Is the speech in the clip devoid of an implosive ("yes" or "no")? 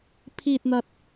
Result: yes